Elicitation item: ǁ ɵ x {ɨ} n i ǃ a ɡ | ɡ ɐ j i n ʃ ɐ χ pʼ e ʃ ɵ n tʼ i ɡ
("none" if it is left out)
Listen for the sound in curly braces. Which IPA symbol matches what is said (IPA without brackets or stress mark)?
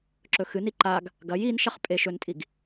ɨ